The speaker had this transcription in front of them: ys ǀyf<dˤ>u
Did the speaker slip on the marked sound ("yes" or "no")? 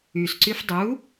no